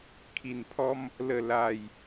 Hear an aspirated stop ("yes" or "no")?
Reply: yes